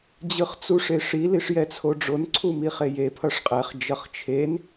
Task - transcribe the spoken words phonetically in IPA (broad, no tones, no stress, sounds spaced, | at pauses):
d͡ʑ ɯ χ t͡s u ʂ e ʂ i l i ʂ j ɛ t͡sʰ o ɖ͡ʐ o n ǀʰ u m i χ e j e pʰ ʌ ʂ qʼ ɛ χ d͡ʒ ʌ χ t͡ʃʰ e n